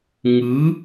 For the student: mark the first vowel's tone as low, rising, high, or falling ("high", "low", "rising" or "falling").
rising